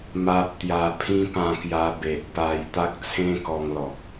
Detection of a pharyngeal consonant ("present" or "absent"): absent